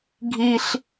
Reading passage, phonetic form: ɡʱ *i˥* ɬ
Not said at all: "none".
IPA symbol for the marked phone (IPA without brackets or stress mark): i˥